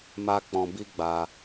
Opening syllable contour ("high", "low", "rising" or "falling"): high